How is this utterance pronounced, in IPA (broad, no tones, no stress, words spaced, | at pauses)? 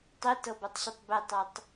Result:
tˤitɤbɔtˤɕutˤ betˤatˤ